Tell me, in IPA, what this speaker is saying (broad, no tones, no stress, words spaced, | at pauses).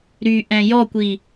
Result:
ɾyʔɛ̃ jɔkʷi